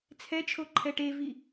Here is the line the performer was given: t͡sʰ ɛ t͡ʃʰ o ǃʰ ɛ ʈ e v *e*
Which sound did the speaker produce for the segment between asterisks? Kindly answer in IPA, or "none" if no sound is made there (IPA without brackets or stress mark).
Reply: i